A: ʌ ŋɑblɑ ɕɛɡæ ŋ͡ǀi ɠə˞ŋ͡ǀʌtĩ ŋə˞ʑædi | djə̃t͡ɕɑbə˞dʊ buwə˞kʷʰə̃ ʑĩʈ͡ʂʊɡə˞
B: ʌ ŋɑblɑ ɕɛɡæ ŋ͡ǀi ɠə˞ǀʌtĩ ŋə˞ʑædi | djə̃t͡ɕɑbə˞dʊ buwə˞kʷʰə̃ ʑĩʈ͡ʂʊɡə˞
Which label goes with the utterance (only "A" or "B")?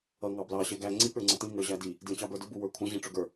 A